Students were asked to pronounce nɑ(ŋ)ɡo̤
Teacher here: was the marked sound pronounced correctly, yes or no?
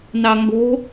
yes